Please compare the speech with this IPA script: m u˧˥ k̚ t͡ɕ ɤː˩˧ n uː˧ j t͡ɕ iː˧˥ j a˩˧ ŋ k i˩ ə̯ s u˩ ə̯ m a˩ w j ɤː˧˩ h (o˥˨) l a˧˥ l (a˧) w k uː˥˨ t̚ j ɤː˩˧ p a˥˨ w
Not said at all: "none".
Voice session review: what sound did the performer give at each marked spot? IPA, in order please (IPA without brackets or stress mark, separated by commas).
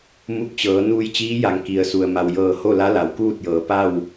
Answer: o˥˨, a˩˧